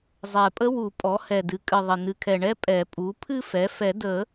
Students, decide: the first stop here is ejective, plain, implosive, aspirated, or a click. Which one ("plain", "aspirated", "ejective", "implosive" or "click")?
ejective